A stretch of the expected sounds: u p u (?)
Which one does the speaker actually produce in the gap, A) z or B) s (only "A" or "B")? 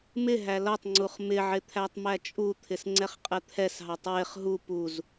A